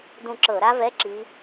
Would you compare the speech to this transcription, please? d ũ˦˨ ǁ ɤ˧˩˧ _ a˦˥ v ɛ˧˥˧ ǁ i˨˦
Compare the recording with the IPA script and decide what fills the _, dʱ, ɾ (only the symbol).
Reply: ɾ